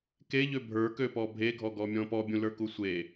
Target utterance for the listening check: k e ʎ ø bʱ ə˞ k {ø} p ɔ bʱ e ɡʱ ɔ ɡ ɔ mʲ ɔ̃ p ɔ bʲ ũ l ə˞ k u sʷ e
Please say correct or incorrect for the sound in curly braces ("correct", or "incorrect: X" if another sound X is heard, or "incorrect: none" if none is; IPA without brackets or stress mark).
correct